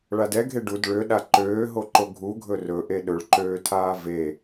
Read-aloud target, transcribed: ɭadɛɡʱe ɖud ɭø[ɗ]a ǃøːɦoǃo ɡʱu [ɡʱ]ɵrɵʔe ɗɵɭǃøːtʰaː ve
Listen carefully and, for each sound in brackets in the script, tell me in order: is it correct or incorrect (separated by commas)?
correct, correct